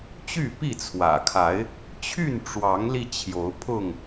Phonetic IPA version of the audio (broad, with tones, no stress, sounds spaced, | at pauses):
t͡ɕ y˥˨ p i˥˨ t͡sʰ w ä̰˨˩ kʰ a˨˦ ɪ̯ | t͡ɕʰ y˥˨ n ʈ͡ʂ w ɑ˨˦ ŋ l i˧ t͡ɕʰ j o˨˦ ʊ̯ pʰ ʊ˥˨ ŋ